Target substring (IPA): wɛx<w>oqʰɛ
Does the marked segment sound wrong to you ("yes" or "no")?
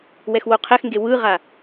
no